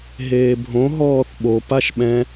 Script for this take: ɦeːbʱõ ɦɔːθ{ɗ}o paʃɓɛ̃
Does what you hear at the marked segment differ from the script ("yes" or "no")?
yes